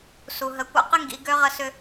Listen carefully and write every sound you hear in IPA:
su˨ɦə˨˦kʷa̰˦qɪ˦ ŋɡḭ˨˦ɡø˦ʁə˦ sʏ˦

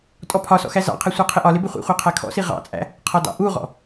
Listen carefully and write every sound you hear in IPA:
tʼɔpʰɒsɔ̰ xæzɑ̰qʰɛ sʷɑqʰɪʔɒlɪ bɪχʷḭχʷɛ qʰækʰɔ̰si ʁɑ̰t͡sʼæ̰ | qʰɒdɑ̰ʔuʁɔ̰

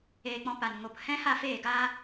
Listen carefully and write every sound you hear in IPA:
eː˧k͡pɔ̃˧ pa˨nŋo˨p hɛ̃˦ ha˦˨feː˦˨ɡaː˦

